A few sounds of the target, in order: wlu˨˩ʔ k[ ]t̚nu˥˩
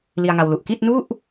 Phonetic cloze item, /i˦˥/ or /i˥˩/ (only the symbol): i˥˩